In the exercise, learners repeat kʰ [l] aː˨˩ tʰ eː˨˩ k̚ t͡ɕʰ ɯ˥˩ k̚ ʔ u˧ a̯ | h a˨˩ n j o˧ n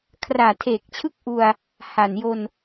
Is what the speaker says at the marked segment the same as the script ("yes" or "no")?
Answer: no